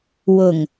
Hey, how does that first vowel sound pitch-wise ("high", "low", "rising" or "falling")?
low